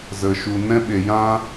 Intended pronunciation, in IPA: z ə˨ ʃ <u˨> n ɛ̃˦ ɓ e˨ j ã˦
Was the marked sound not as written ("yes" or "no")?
no